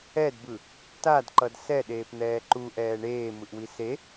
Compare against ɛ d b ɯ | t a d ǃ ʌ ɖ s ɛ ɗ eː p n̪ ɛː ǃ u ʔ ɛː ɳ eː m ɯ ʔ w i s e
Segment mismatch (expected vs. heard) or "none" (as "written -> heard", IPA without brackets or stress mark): ɖ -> d